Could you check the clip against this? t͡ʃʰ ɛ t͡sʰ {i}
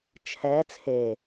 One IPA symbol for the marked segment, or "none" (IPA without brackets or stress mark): e